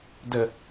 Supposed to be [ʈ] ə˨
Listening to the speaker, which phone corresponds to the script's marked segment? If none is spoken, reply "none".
d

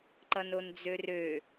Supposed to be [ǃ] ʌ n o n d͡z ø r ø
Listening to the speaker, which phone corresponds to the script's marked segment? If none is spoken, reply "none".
ǃ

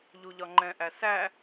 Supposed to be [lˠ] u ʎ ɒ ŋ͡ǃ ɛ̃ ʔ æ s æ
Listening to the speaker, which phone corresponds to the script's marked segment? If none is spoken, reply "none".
ʎ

